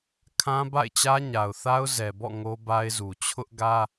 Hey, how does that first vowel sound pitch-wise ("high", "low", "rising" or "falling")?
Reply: high